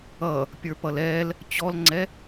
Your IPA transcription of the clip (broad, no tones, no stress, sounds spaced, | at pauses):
ʌ | pʲ ə˞ p ʌ l ɛ l | t͡ɕ ɔ l ŋ͡ǀ ɛ